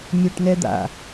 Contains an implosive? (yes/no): no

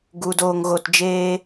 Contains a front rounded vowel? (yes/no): no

